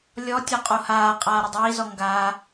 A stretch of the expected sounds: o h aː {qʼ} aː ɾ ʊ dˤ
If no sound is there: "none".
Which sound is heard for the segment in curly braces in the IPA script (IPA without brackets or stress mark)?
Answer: qʼ